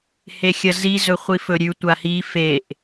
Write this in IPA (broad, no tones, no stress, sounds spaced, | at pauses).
h e xʲ ɐ z i z ɵ χʷ i f ɵ ɾʲ ʉ tʷ a h i f e ʔ